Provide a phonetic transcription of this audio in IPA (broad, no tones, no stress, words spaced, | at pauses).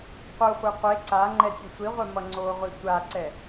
qʷɯχʷe qʷe ǀa ŋ͡ǃɛtʲɯsʷiʁʷɛ mʌŋ͡ǀoʁʷi tʷaǀɛ